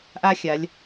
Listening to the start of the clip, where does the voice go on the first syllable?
high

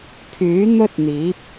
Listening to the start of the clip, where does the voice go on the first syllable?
rising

